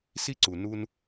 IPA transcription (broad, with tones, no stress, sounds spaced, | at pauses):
s i˥ ǀ u˩ n u˧ n